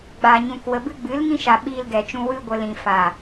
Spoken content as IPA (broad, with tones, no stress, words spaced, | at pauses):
ɡ͡ba˨ɲũ˨k wə˨bɨ˧ɡ͡bɨ˨˦l ŋĩ˧ʃa˨ ɓiː˧lɡɛ˨t͡ʃũ˧ wɨ˧ɡʷə˨ lĩ˨fa˨